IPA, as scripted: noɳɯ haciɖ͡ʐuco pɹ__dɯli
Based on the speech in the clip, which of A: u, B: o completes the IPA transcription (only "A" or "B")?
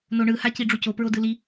B